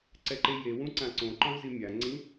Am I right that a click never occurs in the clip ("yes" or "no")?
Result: no